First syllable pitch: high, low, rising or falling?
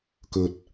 low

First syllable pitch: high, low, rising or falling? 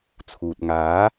low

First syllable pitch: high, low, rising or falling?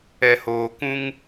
low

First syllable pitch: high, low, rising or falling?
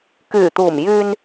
low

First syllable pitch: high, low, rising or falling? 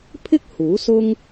high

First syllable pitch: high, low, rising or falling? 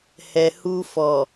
low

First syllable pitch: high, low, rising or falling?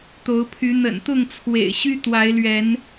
rising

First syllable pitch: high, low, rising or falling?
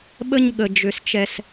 high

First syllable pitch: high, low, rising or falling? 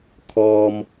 low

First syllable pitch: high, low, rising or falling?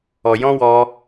low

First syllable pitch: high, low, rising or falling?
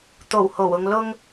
low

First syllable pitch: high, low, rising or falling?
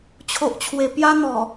low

